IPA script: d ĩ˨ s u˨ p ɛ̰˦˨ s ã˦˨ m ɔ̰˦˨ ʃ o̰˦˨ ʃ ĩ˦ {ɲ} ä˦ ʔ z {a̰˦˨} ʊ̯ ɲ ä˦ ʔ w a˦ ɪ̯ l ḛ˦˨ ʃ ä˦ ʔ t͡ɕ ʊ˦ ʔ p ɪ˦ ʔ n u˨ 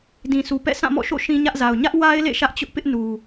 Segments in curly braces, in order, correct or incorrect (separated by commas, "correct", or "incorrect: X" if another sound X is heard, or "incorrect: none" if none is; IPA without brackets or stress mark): correct, incorrect: a˨